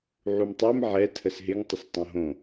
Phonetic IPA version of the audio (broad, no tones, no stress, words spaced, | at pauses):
ʕumtˤɛm ʕɛ tʰəsɦɪŋ tˤəstˤõɦõ